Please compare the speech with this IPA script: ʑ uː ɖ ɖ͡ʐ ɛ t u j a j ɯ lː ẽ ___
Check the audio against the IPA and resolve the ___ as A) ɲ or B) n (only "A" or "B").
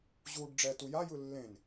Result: B